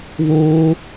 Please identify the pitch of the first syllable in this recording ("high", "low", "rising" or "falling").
high